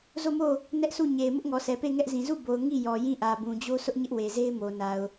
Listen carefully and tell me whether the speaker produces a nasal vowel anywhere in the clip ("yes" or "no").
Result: yes